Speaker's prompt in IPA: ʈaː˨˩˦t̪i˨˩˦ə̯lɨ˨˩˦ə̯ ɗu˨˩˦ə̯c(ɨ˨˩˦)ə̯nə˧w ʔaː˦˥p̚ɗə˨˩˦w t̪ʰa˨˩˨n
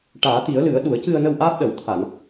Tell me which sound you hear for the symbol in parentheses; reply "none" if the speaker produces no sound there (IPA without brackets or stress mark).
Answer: ɨ˧